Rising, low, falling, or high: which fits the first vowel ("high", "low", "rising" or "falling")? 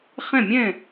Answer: falling